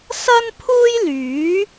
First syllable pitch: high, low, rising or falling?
high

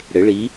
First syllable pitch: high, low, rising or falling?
rising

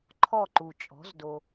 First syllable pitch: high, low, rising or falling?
falling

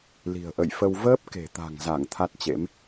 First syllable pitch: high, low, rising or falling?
low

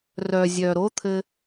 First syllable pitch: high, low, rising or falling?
low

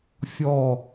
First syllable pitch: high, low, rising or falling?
falling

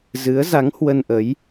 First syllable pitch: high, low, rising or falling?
rising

